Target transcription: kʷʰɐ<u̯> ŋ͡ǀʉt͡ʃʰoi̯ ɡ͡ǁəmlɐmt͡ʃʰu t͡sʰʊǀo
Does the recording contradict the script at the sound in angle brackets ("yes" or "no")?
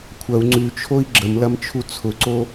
no